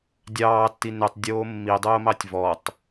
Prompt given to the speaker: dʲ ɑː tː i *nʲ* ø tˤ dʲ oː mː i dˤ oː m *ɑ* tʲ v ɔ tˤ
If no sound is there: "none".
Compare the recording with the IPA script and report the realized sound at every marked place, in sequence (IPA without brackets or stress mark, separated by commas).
n, ɑ